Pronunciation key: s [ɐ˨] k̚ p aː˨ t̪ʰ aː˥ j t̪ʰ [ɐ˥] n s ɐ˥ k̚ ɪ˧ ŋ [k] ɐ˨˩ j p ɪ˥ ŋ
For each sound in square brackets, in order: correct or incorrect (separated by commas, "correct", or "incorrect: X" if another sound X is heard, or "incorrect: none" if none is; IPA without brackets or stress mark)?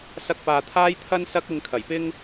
incorrect: ɐ˧, correct, incorrect: kʰ